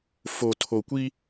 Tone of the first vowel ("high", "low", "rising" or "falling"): low